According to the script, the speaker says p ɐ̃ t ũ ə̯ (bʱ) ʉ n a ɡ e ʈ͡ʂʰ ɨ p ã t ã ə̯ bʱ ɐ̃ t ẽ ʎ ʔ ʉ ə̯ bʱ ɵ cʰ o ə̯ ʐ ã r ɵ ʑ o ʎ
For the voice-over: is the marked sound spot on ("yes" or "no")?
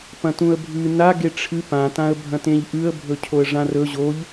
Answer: yes